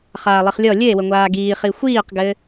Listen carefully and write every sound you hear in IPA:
χ aː lˠ i χ lʲ ɔ lʲ ɘ e̯ w ə ŋʷ aː ɡ iː χ i xʷ iː q ɡ ɘ

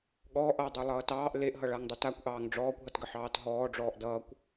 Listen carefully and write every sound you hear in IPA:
ɠ ɔː ʔ ʌː dˤ u lˠ ʌː t ɑː ʔ l e ʔ ɦ ʌ ɭ a ŋ dˤ u t a kʷ ʔ ɑː ŋ ɖ͡ʐ ɔː kʷ ɦ ʌ t ɡ ə ħ ɑː t ɦ ɔː ɖ͡ʐ ɔː ʔ d ʌː kʷ

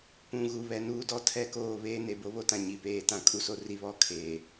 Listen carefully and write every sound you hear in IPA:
p ũ˨ ɣ u˨ β ɛ˨ n uː˦ d ɔ˦ tʰ ɛ˦˨ k oː˦˨ β eː˦ n e˨ b o˦ β o˦ t ã˨ ɲ i˨ p eː˦ t ã˦ kʼ u˦ s o˦ r i˦ β ɔ˦ kʰ eː˨

